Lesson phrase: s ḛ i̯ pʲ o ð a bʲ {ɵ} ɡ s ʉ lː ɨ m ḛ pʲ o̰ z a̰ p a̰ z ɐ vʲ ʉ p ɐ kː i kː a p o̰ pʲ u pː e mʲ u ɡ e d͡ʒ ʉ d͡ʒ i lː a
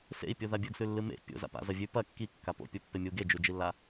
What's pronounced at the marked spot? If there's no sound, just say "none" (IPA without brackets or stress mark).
ɵ